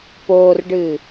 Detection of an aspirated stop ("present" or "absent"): absent